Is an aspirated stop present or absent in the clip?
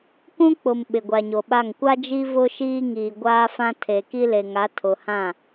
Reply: present